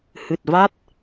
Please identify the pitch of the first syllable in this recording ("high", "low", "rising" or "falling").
low